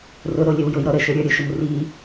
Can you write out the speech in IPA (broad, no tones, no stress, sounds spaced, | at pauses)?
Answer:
r ʊ ɾ o lʲ ə w j ʊ j ɾ ɔ ɾ ə ʃ ə˞ ɾʲ ə˞ ɾʲ ʊ ʃ ʊ m r i